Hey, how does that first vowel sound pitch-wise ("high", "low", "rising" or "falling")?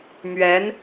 rising